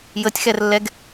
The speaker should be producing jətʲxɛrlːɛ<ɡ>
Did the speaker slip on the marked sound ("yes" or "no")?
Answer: no